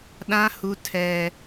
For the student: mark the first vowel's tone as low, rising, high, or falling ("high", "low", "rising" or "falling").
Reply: high